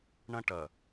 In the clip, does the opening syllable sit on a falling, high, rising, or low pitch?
high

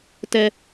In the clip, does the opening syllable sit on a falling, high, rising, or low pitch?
high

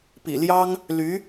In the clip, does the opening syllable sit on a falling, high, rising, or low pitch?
low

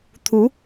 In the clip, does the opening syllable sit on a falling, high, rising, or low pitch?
rising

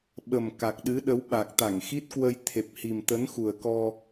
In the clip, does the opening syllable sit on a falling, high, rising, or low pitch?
low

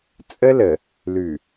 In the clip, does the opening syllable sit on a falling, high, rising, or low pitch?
high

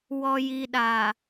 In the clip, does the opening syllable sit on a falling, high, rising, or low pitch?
low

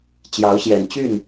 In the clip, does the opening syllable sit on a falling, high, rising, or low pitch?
rising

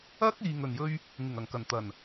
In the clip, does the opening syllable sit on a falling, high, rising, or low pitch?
high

